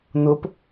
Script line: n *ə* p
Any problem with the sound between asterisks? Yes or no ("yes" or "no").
yes